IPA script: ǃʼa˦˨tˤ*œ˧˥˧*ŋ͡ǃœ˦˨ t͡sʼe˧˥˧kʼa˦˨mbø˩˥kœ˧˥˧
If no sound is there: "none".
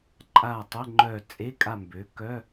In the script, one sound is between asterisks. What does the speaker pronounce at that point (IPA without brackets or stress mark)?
ə˧˥˧